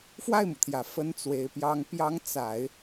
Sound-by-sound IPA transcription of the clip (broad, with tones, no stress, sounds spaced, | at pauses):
f w a˥˩ ɪ̯ m u˩ t̪ʰ j ä˨˩ f ə˥ n t͡s w e˧˥ ɪ̯ p j ɑ˥ ŋ p j ɑ˧˥ ŋ t͡s a˨˩˦ ɪ̯